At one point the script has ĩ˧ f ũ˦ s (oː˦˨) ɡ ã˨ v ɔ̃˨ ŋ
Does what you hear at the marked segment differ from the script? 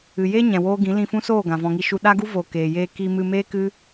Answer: no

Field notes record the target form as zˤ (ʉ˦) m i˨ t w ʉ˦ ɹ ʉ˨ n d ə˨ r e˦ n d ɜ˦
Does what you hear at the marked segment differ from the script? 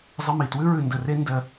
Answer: yes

